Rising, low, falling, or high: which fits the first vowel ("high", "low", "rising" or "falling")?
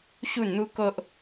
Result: falling